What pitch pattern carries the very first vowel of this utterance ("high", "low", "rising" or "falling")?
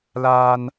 high